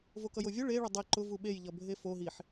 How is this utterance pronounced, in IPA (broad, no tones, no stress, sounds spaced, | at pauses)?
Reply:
v o k ʌ j o vʲ ʊ ɭ e ɭ ʊ dˤ e ǃ ʊ v u ɓ e j ʎ ʌ bʱ e f o ɦ i ħ